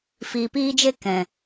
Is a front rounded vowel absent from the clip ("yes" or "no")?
yes